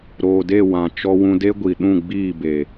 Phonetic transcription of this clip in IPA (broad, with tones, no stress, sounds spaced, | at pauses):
ɾ oː˨ d e˦˨ w ã˨ t͡ʃ ɔ˧ w ũ˧ d e˦ ɡʷ i˨ ɗ ũ˦˨ ɡ͡b iː˦˨ b e˨